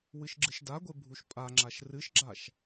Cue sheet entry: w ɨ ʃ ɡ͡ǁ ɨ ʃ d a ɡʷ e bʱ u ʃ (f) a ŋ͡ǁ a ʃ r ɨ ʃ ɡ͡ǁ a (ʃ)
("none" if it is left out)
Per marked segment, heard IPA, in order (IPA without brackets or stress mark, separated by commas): pʼ, ʃ